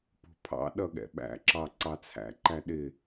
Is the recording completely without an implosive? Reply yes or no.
no